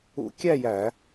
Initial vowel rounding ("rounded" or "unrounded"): rounded